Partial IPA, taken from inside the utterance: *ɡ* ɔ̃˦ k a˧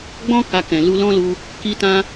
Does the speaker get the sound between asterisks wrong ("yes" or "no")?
yes